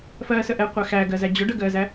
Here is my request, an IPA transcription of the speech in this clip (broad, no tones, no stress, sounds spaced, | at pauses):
f ɜː s ə ʔ ɛ qʷ æ x æ ɡ ɜ z æ d͡ʑ ʊ ɖ ə ɡ ɜː z æ